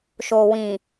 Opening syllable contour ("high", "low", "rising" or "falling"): low